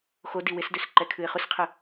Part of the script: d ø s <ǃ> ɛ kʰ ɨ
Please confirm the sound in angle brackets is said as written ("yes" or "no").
yes